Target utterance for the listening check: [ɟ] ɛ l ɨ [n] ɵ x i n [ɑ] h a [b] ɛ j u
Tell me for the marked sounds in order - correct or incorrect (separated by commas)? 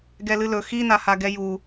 incorrect, incorrect, incorrect, incorrect